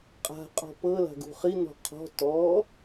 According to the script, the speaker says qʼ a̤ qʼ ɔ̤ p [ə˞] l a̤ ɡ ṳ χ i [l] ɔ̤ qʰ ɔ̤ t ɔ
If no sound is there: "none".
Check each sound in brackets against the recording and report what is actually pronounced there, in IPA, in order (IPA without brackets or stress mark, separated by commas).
ɤ, n